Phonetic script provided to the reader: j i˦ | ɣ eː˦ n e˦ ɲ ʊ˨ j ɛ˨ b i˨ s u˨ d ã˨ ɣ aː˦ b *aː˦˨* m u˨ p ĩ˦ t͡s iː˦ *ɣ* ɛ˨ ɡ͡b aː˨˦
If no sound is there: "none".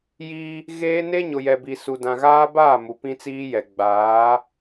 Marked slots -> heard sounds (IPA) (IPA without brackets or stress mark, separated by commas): aː˦˨, j